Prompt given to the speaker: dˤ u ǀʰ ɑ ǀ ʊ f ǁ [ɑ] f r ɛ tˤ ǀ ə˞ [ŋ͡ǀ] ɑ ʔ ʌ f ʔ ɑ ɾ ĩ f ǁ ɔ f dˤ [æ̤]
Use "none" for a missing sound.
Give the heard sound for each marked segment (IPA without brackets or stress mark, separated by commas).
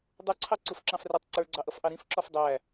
ɑ̃, ɡ͡ǀ, æ